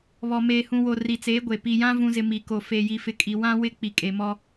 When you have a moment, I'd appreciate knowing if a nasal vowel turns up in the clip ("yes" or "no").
yes